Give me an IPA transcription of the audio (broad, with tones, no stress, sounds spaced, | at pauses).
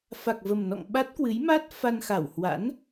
f a˨˩ k̚ v ə˨˩ m n ɔ̰˧˨ ŋ ɓ a˦˥ t̚ k w ɨ˨˦ j m a˦˥ t̚ f a˧ n x a˧˩ w h w a̰˧˥ n